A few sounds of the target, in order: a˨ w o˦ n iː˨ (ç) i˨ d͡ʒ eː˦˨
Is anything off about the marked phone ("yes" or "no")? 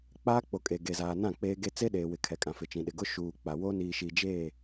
yes